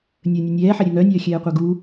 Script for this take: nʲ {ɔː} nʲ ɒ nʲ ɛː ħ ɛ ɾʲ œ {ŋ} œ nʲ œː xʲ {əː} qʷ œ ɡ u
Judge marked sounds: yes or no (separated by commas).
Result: no, yes, no